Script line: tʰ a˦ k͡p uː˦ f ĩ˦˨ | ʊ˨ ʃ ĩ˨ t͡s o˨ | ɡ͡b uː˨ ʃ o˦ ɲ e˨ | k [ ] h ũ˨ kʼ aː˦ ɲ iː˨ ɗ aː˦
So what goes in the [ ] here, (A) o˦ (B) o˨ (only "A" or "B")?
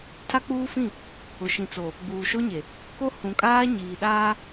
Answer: A